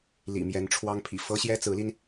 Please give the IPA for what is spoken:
l ḭ˨˩ m j ɛ˧˥ n ʈ͡ʂʰ w ɑ˥ ŋ pʰ ḭ˨˩ f ɤ˥ ɕ j ɛ˥ t͡s ɹ̩˧˥ l i˧ n

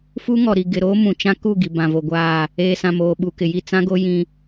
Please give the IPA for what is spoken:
f u˦ ŋ ɔ˨ ɾ i˨ ɡ ɪ˨ ɾ oː˦ m ũ˨ t͡ʃ ã˦ k u˦˨ ɡ i˨ b ã˨ v o˨ ɡʷ aː˦˨ | eː˨ s ã˨ m oː˨ ɓ u˨ k ɪ˨ j i˦˨ t͡s ã˦ ɡ o˦ j ĩ˦

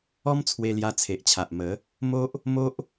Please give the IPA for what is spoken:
ɔ˦ m t͡sʰ w e˧ l j a˧ t͡sʰ e˨ ʔ t͡ɕʰ a˨ ʔ m ə˨˦ | m o˦ ʔ | m o˦ ʔ

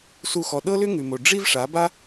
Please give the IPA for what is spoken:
s u˦˨ x ɔ˧ ɗ ɤ˦ l ʏ˦ ŋ ʉ˨ m o˨ ɖ͡ʐ i˦ v ʂ a˨˦ b a˦

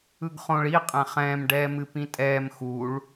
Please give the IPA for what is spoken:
ɯ ɡ χ õ ɭ i qʼ ɛ̃ χ ɛ̃ː m ɖ ɛː m ɨ p ĩ tʼ ɛː m x u ɭ

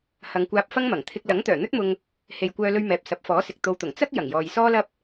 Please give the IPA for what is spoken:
h ɐ˨˧ ŋ kʷ aː˧ p̚ f ɐ˥ ŋ m ɐ˨˩ ŋ t̪ʰ ɪ˧ k̚ l ɐ˨˥ ŋ t̪ œː˨˩ n̪ ɵ˥ t̚ m ʊ˧ ŋ | h e˨ j kʷ œː˧ l ɵ˧ ɥ m ɛː˨ p̚ s ɐ˨˥ p̚ f ɔː˨˥ s ɪ˨ k̚ t̪ o˧ w t̪ ʊ˨˩ ŋ t͡s ɐ˥ k̚ j ɐ˨˩ ŋ j ɔː˨ j s ɔː˥ l ɐ˥ p̚

